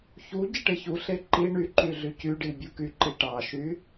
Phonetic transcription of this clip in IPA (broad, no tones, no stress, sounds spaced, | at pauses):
ç u ɟ i ʈ e ç u ɬ e ǃ i ɳ y ǃ y ɮ y c y ɖ i bʲ u k y ǃ i ʈ ɑ ʃ y